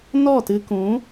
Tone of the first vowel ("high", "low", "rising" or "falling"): falling